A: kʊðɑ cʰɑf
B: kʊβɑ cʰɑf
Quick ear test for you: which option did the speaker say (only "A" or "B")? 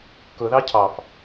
A